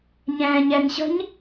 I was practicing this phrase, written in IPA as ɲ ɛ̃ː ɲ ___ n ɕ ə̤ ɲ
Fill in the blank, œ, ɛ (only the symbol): ɛ